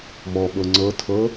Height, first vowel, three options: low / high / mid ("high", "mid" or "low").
mid